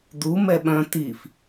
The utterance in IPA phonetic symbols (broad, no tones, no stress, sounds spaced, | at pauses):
d̪ u m ɛ ɓ œ̃ t̪ i f